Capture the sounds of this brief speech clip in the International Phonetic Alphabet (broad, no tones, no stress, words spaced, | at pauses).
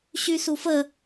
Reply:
ɕysufə